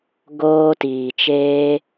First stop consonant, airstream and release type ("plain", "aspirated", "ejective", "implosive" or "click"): plain